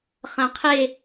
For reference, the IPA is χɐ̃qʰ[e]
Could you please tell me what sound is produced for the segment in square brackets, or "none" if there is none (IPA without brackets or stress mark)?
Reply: e